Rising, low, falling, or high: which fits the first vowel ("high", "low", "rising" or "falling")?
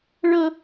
high